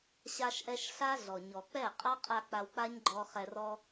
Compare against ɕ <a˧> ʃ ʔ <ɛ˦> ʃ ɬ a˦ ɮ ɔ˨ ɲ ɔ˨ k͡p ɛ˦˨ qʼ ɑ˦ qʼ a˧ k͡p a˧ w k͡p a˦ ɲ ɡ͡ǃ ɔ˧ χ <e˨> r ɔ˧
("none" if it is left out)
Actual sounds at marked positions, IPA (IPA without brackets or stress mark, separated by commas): a˧, ɛ˧, ɛ˨